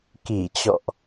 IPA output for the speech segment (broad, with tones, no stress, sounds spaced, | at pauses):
k i˧˩ t͡ɕ ɔ̰˧˨ ʔ